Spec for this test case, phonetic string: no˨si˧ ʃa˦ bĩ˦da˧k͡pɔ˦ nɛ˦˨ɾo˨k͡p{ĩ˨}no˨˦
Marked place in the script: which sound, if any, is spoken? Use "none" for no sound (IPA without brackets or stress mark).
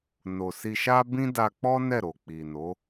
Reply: i˨